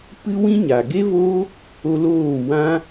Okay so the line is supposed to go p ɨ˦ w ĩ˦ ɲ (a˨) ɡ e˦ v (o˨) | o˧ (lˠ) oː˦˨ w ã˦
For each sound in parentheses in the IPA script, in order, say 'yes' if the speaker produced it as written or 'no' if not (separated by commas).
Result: yes, no, no